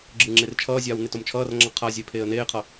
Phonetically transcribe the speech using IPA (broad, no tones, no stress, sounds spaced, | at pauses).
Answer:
ɡ͡ǁ ɯ ŋ͡ǁ e r t͡ʃʰ ʌː zʲ aː w n e t o m t͡ʃʰ ʌː r ŋ͡ǁ ʌ qʰ a zʲ e pʰ eː ə̯ n eː qʰ ʌ